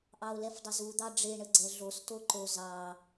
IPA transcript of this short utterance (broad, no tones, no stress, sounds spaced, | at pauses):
ʔ ɑ o̯ l ɛ f dˤ ə z u d̪ ɑ ɖ͡ʐ e ɳ ə ɡ͡ǀ ɛ ɮ o s t o ǃ o z ɑ